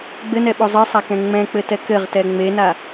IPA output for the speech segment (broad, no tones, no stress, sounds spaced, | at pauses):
ɡ͡b ɘ n ɛ ɓ o zˤ ɨ sˤ a k ɛ̃ ŋ͡m ɛ̃ k͡p ɘ t ɛ k ɘ ʁ t ɛ ŋ͡m e n a